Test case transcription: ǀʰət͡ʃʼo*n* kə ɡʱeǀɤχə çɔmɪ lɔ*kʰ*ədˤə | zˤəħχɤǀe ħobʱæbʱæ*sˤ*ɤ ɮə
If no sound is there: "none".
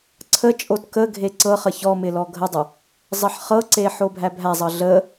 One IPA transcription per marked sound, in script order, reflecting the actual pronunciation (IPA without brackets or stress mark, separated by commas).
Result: t, ɡʱ, zˤ